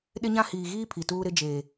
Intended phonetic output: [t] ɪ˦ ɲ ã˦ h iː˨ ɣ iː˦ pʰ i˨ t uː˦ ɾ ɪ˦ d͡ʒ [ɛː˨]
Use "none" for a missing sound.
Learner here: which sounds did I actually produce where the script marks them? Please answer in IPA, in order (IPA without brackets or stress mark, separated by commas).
ɗ, eː˨